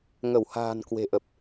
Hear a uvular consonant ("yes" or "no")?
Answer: no